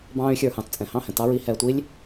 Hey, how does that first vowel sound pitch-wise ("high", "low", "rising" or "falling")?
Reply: high